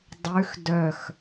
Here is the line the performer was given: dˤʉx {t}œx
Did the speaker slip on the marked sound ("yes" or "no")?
yes